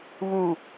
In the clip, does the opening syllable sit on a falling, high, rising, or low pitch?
low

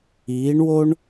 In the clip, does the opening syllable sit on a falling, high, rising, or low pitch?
rising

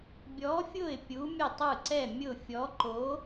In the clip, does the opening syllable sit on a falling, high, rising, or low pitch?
rising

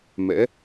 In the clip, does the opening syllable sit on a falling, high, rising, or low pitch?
rising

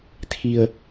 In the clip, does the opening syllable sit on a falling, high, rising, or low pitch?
low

